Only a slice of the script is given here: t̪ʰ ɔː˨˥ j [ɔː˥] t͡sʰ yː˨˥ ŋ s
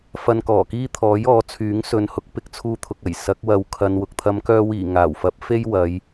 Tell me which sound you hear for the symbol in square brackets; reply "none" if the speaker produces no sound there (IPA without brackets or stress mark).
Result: ɔː˨˥